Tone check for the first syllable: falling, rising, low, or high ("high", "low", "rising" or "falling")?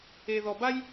low